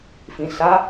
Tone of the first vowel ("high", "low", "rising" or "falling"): low